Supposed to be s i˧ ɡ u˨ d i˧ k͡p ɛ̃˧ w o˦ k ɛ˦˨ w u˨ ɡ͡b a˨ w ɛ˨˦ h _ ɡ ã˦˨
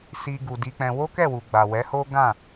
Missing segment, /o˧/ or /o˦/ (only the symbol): o˦